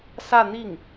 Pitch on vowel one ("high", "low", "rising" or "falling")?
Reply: falling